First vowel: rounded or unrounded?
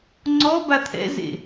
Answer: rounded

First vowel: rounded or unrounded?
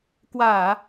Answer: unrounded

